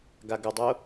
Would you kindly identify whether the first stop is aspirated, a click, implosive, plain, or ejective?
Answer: plain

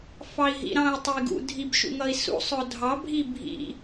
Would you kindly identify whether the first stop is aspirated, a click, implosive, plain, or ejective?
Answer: plain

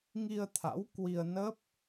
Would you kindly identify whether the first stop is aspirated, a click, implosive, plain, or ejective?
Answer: aspirated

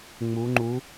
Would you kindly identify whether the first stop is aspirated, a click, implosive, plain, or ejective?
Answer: click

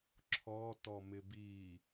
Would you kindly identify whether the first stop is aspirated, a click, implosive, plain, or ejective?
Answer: click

